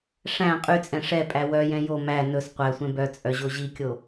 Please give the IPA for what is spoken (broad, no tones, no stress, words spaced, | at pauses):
ʂæ̃ qʼyt͡sʼɛ̃ ʂɛpʼæ wœjɛ̃ jo mæ nɵs qʷæsʷɛ̃ bœ t͡sʼœʑoʑikʲo